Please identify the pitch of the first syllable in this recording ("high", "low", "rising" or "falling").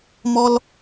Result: high